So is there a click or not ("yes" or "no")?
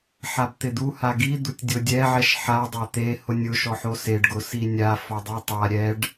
no